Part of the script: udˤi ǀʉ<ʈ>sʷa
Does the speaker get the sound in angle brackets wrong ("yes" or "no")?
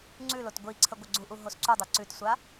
yes